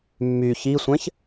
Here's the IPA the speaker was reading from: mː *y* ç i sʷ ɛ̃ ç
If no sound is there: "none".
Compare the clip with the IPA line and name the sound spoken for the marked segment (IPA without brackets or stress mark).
y